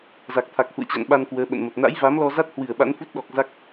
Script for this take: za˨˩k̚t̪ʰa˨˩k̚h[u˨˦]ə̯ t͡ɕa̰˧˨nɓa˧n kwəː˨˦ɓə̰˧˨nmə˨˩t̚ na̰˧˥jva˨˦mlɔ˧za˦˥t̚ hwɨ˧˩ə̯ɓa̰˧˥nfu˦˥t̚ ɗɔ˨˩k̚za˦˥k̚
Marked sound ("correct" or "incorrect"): incorrect